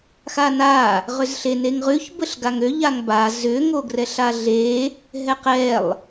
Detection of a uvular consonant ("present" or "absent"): present